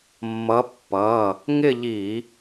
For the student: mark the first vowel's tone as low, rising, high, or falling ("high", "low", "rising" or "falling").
rising